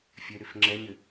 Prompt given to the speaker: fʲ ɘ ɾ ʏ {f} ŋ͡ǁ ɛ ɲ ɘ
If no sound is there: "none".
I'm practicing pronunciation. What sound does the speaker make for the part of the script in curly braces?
f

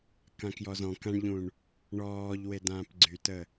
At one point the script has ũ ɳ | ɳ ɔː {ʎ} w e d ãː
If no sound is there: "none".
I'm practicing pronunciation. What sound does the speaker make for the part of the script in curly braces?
ʎ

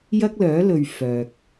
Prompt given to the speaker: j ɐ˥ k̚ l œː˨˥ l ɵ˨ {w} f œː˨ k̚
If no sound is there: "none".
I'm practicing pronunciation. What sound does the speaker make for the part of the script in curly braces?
ɥ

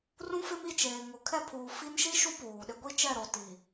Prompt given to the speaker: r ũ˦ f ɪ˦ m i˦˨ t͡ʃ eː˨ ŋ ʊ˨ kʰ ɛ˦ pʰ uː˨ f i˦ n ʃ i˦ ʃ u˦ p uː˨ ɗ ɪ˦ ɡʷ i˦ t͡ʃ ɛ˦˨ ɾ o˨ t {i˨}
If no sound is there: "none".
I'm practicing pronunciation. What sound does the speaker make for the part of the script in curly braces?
i˨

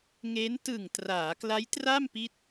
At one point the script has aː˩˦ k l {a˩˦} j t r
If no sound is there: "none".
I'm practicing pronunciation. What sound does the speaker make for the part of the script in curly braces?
a˦˥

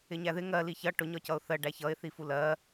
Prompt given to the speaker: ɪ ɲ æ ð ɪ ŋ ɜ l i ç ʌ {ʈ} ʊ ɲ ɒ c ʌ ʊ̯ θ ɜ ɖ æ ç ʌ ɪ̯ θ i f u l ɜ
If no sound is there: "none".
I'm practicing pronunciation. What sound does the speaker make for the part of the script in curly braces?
ʈ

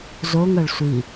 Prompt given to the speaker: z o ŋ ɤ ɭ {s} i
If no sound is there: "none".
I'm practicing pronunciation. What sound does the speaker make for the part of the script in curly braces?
sʷ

